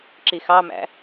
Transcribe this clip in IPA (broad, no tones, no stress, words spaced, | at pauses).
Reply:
ǁixɑmæ̰